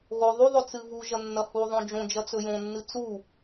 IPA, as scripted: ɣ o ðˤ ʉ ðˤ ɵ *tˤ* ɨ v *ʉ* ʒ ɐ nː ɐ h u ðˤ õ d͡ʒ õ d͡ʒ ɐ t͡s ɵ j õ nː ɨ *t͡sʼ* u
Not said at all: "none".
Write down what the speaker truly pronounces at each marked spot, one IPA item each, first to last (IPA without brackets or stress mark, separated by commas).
t͡s, u, t͡s